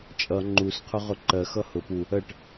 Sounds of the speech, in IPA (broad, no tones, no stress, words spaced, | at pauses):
t͡ʃʼʌ ŋ͡ǃusqʰʊ ʁʊǃɜxʌ hʊ pu | ɜʈ